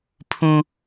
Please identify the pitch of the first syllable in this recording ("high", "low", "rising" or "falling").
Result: high